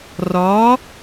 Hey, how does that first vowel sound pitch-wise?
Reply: rising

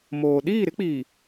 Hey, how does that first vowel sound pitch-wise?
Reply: low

